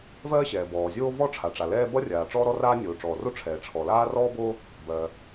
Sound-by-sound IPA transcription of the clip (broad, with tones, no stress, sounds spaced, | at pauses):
v ɜː˥ ɕ ɛː˩ b ɔː˩ zʲ oː˥ v ɔ˥ ʈ͡ʂʰ a˩ ʈ͡ʂ a˩ l ɛː˥ b ʌ˥ rʲ aː˩ ʈ͡ʂ ɔː˥ ɾ ɔ˥ r aː˥ nʲ oː˩ ʈ͡ʂ ɔː˩ r o˥ ʈ͡ʂʰ ɛː˩ ʈ͡ʂʰ ɔ˩ l aː˥ r ɔː˥ b o˥ | b ɜː˩